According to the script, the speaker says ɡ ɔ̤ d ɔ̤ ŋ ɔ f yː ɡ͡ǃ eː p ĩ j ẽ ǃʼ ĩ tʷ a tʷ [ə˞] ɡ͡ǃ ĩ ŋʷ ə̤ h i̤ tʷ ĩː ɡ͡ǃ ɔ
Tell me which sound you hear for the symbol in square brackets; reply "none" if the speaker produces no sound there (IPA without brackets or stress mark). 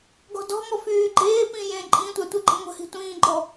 ə